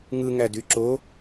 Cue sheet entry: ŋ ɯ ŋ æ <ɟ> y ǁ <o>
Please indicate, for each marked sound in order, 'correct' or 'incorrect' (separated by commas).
incorrect, correct